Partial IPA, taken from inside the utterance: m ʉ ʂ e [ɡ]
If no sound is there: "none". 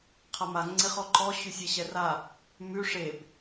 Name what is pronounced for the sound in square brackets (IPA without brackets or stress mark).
b